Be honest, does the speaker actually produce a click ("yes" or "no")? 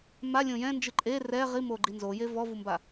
yes